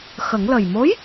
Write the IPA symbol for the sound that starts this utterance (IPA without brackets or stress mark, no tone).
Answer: x